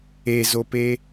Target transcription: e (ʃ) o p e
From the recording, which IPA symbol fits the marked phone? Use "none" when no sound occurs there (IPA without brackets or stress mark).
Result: z